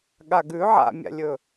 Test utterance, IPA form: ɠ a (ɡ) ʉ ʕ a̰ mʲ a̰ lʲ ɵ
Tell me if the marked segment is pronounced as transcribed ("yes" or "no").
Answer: yes